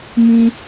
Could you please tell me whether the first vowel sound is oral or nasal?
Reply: nasal